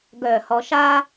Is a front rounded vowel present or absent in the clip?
present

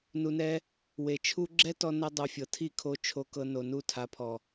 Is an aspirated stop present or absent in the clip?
present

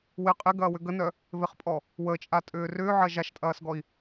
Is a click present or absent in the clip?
absent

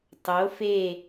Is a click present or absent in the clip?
absent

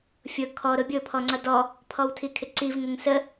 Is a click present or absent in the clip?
present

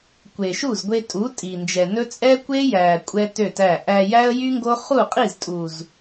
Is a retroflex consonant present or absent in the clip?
absent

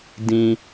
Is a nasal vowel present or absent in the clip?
present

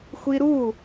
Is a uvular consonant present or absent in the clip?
absent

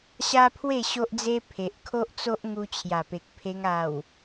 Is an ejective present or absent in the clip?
absent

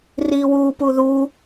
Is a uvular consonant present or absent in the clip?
absent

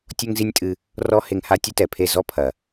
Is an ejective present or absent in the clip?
present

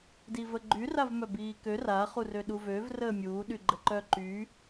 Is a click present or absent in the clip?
present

